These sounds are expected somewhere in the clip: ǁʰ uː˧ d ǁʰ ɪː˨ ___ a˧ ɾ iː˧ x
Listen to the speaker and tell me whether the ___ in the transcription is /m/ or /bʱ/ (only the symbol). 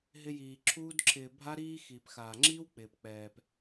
bʱ